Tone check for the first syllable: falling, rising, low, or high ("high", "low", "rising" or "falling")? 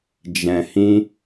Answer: low